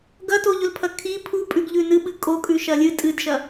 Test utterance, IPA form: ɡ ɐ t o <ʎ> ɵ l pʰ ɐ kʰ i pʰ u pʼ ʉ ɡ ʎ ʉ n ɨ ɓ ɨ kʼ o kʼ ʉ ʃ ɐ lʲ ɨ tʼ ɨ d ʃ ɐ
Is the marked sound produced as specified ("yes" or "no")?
yes